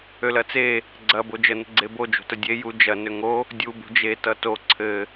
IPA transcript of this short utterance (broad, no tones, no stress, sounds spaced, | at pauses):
ø l ɐ t͡s e | ɡ͡ǀ ɐ b o d͡ʒ ə n ə̤ ɡ͡ǀ e b o d͡ʒ o̤ t ə dʲ e j u d͡ʒ ɐ n ø ŋ o | dʲ u b ṳ d͡ʒ e t ʌ t o ǀʰ ɘ